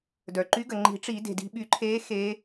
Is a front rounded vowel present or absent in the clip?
present